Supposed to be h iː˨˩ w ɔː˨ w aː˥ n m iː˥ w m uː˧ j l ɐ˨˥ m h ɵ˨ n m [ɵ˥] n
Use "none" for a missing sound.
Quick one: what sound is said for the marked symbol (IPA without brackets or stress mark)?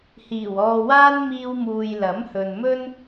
ɵ˥